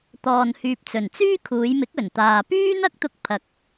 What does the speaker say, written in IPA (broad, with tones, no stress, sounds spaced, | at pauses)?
t̪ ɔː˨ n h yː˨ p̚ t͡s ɵ˨˩ n t͡s yː˥ kʰ uː˨˧ j m ɪ˨˥ k̚ ɵ˨˩ n t̪ aː˨ p yː˥ n̪ ɐ˥ k̚ t̪ ʊ˧ k̚ pʰ ɐ˨˥ k̚